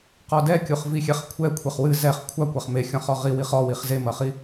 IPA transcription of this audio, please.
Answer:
q ɔ d ɛ kʲ u χ v i xʲ ɛ χ kʷʰ ɛ kʷʰ e χ w ɨ z ɛ χ kʷʰ a kʷ a χ m e xʲ ɔ̃ χ ɔ ʁ i w i χ ɔ w i χ z e m ɐ χ i

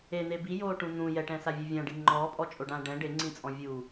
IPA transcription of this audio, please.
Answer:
e n̪ e b i j oː ʈ ũ n̪ ũ j ɛ ʈ ɛ̃ s a vʲ e vʲ ã ɖ i ŋ͡ǃ ɔː pʼ ɔ t͡ʃʼ o ɖ ãː ɖ ɛ̃ ɖ e ŋ͡ǀ ĩ t͡sʼ ɔ̃ vʲ u

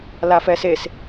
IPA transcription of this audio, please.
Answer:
l a f ɛ s e s

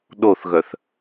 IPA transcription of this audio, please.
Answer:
ɗ o θ ɣ œ θ

